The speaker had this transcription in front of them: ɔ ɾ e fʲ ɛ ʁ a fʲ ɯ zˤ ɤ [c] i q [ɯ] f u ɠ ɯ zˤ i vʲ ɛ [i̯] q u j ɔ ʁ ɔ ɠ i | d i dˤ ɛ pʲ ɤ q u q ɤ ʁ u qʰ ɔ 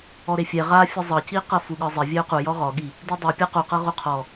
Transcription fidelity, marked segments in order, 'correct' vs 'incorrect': correct, incorrect, incorrect

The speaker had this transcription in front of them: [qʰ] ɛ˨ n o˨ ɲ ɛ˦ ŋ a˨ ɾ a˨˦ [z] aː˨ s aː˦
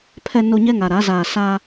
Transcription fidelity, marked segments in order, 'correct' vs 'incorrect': incorrect, correct

